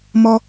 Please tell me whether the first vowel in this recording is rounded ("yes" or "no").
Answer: yes